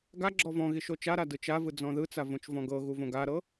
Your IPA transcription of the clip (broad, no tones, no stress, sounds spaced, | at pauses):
ɡ a ɡ͡ǁ ɔ v ɔ̃ ɣ i ʃ o t͡ʃ a ɾ a d ɯ t͡ʃ a v ɯ d͡z ɔ̃ ð ɯ t͡s a v õ t͡ʃ v ɔ̃ ɡ ɤ ɣ u v õ ɡ a ɾ ɤ